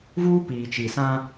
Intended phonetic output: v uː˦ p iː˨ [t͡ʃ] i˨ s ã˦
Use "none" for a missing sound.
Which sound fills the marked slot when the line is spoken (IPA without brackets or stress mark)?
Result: t͡ʃ